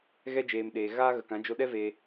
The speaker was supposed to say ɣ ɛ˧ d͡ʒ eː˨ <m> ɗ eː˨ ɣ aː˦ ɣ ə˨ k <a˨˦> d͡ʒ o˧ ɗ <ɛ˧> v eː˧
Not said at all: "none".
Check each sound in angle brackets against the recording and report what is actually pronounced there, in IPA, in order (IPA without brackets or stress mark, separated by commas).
m, ã˨˦, ɛ˦